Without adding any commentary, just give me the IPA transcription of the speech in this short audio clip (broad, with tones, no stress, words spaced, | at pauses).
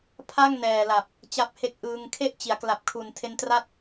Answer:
pʰa˥˩ŋnɛː˨˩la˨˩p̚ | t͡ɕa˦˥p̚he˦˥k̚ʔɯː˧ŋ kʰe˥˩ʔ t͡ɕi˩˦a̯ kla˨˩p̚kʰu˨˩ntʰe˧ntra˥˩t̚